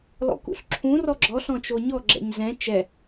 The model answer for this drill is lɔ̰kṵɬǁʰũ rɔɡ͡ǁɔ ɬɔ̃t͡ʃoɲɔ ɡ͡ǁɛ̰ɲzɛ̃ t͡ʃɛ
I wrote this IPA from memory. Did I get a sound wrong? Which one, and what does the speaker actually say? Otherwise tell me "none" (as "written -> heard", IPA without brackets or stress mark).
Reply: none